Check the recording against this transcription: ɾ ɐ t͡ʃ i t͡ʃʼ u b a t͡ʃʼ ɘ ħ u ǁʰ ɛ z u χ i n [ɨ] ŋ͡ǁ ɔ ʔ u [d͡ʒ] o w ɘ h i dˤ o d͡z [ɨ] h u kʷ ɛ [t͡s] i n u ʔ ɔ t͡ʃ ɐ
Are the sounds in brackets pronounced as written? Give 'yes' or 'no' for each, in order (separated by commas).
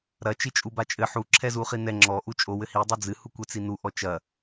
no, no, yes, yes